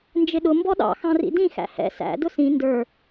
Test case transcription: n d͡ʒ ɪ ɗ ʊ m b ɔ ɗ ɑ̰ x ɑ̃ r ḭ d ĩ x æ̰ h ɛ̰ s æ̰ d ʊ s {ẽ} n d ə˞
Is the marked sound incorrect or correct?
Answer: incorrect